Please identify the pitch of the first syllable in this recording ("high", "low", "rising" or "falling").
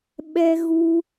high